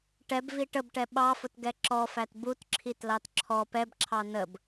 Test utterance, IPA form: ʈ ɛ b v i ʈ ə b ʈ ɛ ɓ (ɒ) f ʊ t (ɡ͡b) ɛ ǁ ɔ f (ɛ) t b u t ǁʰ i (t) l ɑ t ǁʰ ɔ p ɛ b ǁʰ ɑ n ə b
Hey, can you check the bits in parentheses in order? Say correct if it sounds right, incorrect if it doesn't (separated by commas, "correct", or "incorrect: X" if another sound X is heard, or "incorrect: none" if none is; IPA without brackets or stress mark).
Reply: incorrect: ɑ, incorrect: ɡ, incorrect: æ, correct